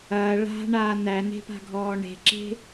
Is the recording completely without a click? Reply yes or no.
no